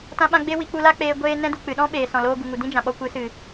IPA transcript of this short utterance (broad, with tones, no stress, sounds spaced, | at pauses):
t ã˧ ɓ ã˧ ɡ͡b e˦ w i˧ k͡p u˧ l a˦ k͡p eː˧ ɡʷ eː˦ n ɛ̃˦ d u˨ k͡p ɨ˨ ɗ ɔ̃˦ ɓ eː˨ s ɔ̃˨ l oː˧ ɡ u˨ ŋ u˨ d ĩ˦ d͡ʒ ã˨ ɓ ɔ˧ kʷ ɨ˨˦ s ɨ˨